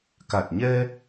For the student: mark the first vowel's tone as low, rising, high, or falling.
low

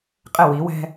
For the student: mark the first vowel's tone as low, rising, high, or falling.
falling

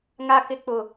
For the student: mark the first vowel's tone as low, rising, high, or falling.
low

